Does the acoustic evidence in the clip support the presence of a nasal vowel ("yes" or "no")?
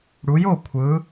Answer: no